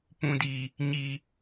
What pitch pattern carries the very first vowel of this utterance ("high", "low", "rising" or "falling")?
low